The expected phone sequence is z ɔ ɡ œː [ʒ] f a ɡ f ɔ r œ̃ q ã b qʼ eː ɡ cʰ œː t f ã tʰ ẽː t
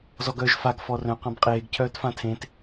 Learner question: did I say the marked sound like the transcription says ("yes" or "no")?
yes